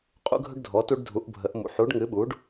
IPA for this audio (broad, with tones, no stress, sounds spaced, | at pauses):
qʼ ṵ˦ ɡʱ ə˦ ɡ dʱ ɔ˩˥ t u˦ ɖ dʱ u˩˥ ʔ bʱ ə˩˥ ʔ m ṵ˩˥ ħ u˩˥ ɖ ŋ ɨ˩˥ ɓ u˩˥ ɖ